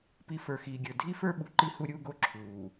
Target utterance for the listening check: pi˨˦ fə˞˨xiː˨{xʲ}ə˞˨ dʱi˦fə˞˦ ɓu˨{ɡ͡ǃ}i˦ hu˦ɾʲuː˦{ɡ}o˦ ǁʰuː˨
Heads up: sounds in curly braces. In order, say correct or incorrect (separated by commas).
incorrect, incorrect, correct